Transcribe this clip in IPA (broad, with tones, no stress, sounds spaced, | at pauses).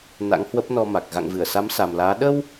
n a̰˧˥ ŋ h w ə˦˥ p̚ n ɔ˧ m a˨˩ k̚ ɣ a̰˧˨ ŋ v ɨ˧˩ ə̯ s a˨˦ m s a˨˩ m l aː˨˦ ɗ ə˧ w